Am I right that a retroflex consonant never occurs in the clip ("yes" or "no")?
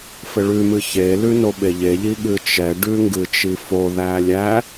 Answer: no